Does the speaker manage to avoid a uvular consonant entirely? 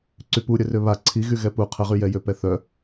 no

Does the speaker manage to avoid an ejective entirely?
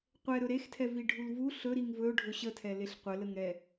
yes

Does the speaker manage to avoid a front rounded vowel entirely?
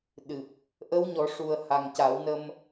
yes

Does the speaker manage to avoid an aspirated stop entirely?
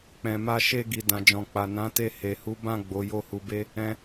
yes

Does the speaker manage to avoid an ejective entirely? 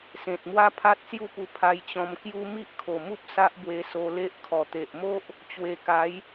yes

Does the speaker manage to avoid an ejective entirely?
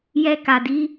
yes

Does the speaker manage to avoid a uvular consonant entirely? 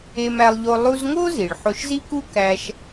yes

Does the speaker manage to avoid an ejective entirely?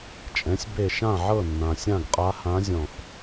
no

